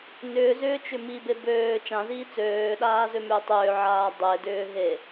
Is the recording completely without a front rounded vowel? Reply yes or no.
no